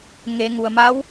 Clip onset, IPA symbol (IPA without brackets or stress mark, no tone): ŋ